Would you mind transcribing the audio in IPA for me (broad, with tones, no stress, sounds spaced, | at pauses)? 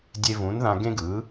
dʲ e˧ v ũ˩˥ n ð ã˧ ɡ ẽ˥ ɡ ɯ˩˥